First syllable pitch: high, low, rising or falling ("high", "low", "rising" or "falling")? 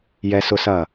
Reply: high